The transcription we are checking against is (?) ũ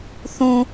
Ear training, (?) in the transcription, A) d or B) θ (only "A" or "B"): B